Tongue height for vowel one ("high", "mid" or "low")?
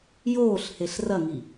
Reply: mid